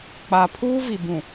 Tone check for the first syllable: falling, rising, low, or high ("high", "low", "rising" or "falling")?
low